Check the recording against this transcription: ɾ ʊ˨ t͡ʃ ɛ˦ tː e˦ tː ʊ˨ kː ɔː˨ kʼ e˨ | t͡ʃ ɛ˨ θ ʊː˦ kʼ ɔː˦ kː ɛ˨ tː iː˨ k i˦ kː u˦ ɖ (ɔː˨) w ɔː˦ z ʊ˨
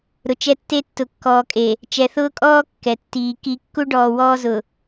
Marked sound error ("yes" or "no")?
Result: no